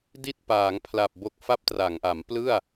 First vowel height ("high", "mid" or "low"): high